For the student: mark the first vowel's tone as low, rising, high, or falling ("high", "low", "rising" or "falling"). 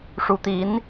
rising